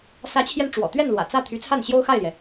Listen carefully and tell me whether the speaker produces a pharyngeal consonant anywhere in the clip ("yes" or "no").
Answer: no